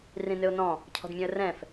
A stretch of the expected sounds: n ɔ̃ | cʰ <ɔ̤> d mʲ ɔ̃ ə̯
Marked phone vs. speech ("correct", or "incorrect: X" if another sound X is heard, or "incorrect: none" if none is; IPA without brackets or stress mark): correct